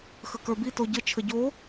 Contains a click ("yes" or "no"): no